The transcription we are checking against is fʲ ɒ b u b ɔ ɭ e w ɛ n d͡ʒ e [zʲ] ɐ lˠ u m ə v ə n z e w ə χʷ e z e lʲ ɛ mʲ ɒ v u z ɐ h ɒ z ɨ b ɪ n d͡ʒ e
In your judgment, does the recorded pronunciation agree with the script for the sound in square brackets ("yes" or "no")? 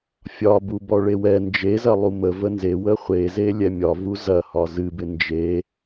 no